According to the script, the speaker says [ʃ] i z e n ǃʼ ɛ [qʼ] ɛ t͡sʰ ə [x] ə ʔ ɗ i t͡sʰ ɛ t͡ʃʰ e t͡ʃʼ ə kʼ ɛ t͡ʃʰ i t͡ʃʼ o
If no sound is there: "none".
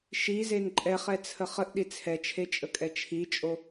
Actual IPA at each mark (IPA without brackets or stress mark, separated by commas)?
ʃ, χ, χ